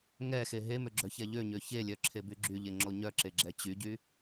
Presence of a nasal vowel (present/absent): absent